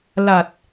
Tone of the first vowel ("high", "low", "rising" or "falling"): low